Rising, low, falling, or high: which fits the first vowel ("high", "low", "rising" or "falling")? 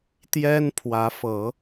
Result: high